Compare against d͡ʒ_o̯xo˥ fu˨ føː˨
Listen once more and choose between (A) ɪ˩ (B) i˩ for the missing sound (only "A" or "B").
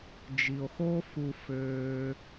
B